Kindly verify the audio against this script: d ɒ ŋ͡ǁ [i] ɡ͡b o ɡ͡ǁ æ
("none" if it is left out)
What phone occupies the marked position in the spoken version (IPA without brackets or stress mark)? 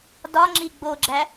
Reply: i